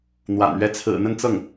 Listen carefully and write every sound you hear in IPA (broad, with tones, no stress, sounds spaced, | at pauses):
n̪ w a̰˨˩ n ɥ ɛ˥ t͡sʰ ɹ̩˨˩ n̪ ə˥˧ n t͡s ɤ˥˩ ŋ